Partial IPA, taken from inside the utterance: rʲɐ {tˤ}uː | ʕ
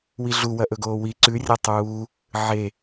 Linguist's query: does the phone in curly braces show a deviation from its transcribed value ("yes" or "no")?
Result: no